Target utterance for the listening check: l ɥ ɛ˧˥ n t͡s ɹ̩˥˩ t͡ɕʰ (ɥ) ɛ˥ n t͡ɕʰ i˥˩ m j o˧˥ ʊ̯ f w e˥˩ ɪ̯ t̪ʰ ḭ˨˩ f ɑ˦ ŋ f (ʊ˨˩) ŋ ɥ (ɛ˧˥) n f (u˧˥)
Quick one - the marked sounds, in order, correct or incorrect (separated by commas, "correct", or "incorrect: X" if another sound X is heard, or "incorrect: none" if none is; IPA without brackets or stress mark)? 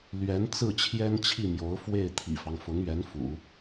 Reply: incorrect: j, incorrect: ʊ˧˥, correct, incorrect: ṵ˨˩˦